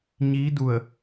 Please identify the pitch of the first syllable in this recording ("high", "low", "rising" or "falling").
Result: rising